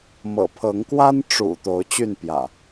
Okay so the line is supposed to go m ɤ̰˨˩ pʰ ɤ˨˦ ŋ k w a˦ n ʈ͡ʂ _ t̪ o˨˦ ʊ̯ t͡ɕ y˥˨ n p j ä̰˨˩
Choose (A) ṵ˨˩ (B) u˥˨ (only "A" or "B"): A